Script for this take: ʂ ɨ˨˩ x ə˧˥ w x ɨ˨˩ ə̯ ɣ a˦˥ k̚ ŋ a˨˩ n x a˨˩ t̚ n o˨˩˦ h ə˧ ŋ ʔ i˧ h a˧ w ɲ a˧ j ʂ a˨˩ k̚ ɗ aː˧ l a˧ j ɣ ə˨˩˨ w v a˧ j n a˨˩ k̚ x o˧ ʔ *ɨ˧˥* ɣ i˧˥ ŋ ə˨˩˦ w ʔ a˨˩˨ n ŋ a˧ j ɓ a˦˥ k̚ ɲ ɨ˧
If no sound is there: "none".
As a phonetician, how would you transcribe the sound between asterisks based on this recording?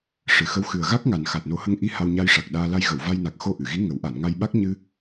ɨ˨˩˨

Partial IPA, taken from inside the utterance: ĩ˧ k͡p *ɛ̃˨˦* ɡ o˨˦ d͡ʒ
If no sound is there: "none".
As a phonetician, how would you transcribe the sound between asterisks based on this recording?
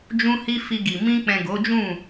ɛ̃˨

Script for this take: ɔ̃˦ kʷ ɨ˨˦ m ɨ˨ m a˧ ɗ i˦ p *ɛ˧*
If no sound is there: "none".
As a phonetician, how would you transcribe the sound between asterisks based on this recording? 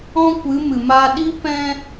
ɛ̃˧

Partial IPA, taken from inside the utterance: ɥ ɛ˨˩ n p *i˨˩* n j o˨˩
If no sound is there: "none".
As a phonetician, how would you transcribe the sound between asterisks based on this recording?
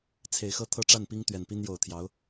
i˥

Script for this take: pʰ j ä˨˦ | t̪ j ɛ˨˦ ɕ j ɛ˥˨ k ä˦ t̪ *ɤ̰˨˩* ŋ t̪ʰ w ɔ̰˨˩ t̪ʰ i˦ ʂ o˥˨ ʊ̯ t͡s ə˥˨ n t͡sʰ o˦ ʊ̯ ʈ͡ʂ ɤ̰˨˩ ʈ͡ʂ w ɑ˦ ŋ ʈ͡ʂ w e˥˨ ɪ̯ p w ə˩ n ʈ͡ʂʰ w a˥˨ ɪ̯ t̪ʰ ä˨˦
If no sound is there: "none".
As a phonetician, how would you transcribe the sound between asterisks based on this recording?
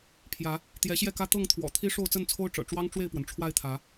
ɤ˥˨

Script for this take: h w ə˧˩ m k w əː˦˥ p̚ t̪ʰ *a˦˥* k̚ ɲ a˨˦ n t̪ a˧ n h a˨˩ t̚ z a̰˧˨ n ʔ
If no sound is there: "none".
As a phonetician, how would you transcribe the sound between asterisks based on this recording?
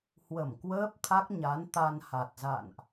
a˦˥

